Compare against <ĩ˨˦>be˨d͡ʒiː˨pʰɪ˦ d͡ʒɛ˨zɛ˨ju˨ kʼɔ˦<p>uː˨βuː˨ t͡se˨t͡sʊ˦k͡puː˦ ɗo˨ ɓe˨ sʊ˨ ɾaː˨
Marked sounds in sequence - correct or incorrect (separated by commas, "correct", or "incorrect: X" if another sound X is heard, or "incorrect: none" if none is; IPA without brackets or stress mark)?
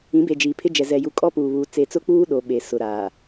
correct, correct